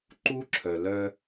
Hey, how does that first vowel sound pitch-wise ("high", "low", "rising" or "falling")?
high